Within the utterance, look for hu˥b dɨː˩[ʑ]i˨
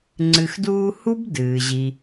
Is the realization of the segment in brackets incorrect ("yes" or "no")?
no